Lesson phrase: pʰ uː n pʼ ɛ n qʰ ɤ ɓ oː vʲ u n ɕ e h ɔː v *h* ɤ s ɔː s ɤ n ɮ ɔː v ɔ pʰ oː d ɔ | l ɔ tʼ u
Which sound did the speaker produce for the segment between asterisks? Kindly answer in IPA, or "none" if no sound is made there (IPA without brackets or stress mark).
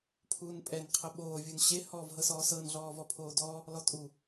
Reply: ɦ